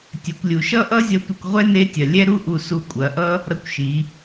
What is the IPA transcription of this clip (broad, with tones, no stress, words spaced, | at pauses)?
tʲɛ˩˧kʷlʲu˩ ʃʌ˥ʔʌ˥zʲʌ˧tʷɐ˧kʷ ʁʷɛ˥ne˧˥tʲɐ˩ lʲɛ˥ɾu˥ ʔu˧su˧ kʷʼɐ˩˧ʔʌ˥ | ɾʌ˧kʷʃi˩˧